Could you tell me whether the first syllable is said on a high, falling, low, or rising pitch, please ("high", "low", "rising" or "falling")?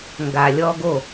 low